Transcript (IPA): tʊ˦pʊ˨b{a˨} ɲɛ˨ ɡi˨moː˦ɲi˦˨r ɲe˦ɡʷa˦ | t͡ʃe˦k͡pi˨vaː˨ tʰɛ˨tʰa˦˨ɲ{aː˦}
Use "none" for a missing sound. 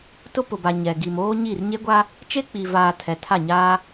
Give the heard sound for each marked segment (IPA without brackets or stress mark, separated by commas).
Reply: a˨, aː˦